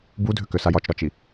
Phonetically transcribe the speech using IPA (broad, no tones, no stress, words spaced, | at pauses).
budʱʏkʏsaj ɒt͡ʃɾɒt͡ʃi